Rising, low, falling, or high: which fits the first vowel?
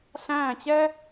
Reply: falling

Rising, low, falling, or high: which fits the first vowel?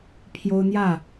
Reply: high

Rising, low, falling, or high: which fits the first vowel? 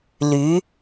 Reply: rising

